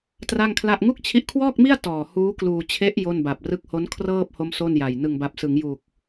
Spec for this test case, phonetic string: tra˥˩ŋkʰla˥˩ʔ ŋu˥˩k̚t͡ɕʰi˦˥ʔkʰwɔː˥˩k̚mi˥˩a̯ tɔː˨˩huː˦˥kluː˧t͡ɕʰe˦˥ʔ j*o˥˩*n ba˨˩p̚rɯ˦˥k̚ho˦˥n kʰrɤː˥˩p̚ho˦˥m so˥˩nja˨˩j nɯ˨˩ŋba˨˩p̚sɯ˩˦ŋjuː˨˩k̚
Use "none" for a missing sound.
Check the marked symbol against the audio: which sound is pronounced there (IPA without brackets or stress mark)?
o˥˩